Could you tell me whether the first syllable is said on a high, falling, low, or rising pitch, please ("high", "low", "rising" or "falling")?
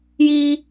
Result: high